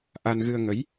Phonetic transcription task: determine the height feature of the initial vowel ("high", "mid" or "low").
low